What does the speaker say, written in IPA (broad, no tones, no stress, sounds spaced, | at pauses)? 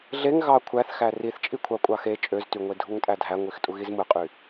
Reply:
ɮ e ŋ ɣ ɑ kʷʰ æ θ x æ r i θ t͡ʃʼ i kʷʰ ɑ kʷʼ ɑ x e t͡ʃʼ ø z t y ŋʷ e dʱ u ŋ tʼ æ dʱ æ ŋʷ i x tʼ u ɣ i z m ɯ qʼ y